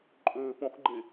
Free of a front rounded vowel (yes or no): no